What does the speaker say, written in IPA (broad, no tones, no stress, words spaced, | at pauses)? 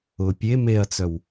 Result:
ʊ pʲe meɐ̯t͡sœw